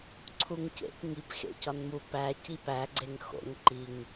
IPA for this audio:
ǀʰuŋcḛp ŋip xḛcɒnmu pæ cipæ ɡ͡ǀeŋxo̰ŋ ǃiŋ

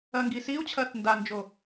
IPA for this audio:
ɐŋɡisiu̯t͡ɕʰɐθ ndand͡ʒo

